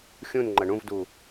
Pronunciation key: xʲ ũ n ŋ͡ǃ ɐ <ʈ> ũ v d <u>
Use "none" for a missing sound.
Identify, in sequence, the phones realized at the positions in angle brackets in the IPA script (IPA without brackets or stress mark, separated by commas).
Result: ɳ, u